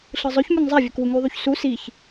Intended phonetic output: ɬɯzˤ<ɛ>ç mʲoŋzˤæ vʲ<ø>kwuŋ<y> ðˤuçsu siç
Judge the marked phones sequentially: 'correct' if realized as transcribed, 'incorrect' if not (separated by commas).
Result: incorrect, correct, correct